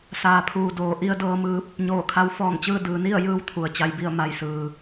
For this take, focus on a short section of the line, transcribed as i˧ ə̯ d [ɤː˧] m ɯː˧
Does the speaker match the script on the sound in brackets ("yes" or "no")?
yes